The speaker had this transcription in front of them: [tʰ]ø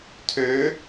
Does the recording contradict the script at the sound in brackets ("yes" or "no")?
no